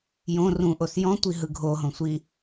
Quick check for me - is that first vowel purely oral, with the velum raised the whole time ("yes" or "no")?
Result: no